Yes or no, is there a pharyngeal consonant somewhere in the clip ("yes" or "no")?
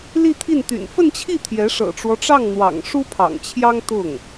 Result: no